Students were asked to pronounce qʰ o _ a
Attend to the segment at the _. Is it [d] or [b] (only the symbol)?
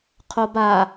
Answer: b